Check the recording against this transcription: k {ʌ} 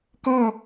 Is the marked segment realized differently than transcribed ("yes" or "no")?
yes